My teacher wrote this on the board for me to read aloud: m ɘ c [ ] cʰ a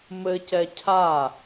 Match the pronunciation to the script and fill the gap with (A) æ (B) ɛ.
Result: B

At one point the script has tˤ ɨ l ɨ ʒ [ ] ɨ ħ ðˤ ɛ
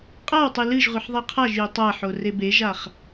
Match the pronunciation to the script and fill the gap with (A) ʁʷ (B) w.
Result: A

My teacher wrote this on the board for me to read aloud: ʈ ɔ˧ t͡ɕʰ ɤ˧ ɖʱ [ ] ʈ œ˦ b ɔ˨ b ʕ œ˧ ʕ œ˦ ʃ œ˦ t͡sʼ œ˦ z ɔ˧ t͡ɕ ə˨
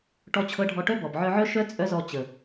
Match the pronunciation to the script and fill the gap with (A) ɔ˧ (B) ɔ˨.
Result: A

